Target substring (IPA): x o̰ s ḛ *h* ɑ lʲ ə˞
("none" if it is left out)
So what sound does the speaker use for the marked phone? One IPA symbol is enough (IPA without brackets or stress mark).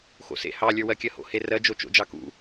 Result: h